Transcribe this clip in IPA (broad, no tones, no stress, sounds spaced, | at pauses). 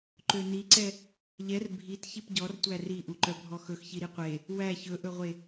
ǃ ø n i ǀ ɛ | ʎ ɛ r bʱ i t ç i p ɟ ɔ r tʷ æ r i ʔ u ǃ œ bʱ ɔ x ɵ x ç i ɾ i qʷ e | w æ ç ɵ ʔ ɵ ʁʷ e